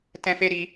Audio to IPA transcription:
tɛ̃˦fe˦ ɾi˦

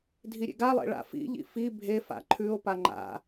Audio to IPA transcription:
dʱiɾʲḛɡalˠḛ ɭa̰fḭʎḭ fi bʱe fa̰ǃʰʉo̯pa ŋ͡ǃa̰

